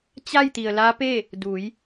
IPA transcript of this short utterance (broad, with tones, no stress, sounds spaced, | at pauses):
t͡ɕ a˥˨ j t̪ i˩ ə̯ l a˧˥ p e˥˨ | d u˩˧ j